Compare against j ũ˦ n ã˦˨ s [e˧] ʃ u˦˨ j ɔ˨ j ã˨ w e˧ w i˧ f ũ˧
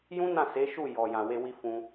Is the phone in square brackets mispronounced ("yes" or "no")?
yes